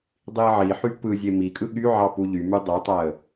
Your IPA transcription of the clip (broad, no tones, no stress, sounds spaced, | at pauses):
dˤ i ə̯ ʕ i ħ y p ɯ zʲ e m i kʼ ɯ ɠ y ʕ ɑ p u ʎ y m y dˤ e tˤ æ ə̯